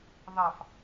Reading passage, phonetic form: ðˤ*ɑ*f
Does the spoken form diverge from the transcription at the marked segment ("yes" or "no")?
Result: no